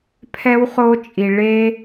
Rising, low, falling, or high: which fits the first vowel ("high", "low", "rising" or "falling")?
high